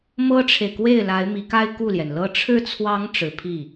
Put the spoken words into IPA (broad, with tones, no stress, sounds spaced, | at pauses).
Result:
m ɤ˥ ʈ͡ʂʰ e˨ ɪ̯ k w e˥˩ ɪ̯ l a˧˥ ɪ̯ m i˧˥ k a˥ ɪ̯ k u˥˩ l j ɛ˩ n l ɤ˥ ʈ͡ʂʰ ɻ̩˥˩ t͡sʰ w ɑ˧˥ ŋ ʈ͡ʂ ɻ̩˧˥ pʰ i˥˩